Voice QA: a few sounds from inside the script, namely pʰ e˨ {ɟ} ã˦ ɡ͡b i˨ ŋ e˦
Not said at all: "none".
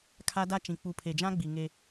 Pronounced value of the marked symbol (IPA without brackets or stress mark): d͡ʒ